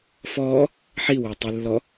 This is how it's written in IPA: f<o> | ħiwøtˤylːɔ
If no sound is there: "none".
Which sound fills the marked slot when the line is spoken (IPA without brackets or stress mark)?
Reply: ɔ